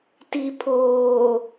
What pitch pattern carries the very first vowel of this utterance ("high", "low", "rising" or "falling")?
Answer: low